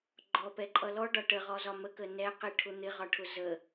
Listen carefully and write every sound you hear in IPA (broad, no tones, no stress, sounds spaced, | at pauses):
ɡ͡ǃ ɔ p ɛ ǃʼ ʌ l ɔ ɖ ɒ ʈ ə ʁ ɔ z ɒ m ə k ə n ɛ q i ʈʰ ʊ n̪ ɪ ʁ ɒ ʈʰ ʊ z ə